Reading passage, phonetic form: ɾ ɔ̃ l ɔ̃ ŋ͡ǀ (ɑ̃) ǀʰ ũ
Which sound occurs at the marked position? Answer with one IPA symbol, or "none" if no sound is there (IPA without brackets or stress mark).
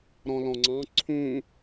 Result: ɑ̃